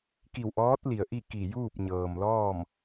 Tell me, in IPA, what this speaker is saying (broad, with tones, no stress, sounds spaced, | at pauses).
k i˧˩ w ʔ ɔː˧˥ t̚ l i˩ ə̯ ʔ i˥˨ k i˧˩ j uː˥˨ p̚ ɲ ɤː˩ m l ɔː˥˨ m